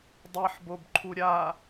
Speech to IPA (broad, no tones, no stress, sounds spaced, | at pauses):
dˤ e ħ b o b ǃʰ u ɾʲ a